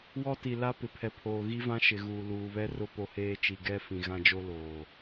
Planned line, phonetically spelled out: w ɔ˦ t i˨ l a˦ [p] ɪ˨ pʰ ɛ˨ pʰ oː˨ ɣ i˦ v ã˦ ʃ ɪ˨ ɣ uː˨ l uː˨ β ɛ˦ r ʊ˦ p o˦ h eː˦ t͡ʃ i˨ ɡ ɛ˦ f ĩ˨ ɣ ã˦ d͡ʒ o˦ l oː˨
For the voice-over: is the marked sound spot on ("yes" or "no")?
yes